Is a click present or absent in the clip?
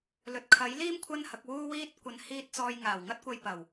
absent